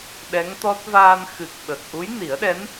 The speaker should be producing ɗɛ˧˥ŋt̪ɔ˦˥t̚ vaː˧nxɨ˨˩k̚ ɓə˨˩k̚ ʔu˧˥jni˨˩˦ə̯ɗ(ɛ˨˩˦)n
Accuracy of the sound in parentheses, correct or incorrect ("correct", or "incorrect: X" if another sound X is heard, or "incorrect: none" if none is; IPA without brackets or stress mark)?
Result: incorrect: ɛ˧˥